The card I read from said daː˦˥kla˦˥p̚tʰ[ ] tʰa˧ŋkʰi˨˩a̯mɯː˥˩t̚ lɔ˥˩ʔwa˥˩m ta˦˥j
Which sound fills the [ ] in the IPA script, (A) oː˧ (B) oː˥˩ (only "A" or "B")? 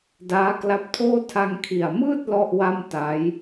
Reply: B